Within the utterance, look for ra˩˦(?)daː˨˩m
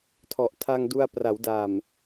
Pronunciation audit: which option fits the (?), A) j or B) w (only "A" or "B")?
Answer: B